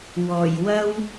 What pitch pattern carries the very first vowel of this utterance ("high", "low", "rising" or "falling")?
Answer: low